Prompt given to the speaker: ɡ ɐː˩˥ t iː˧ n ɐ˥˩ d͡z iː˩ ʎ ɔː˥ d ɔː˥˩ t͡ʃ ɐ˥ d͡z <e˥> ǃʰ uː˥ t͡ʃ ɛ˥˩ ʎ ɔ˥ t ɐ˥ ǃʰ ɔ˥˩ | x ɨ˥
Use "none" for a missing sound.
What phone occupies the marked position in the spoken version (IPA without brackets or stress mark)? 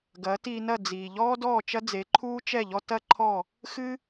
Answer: e˩˥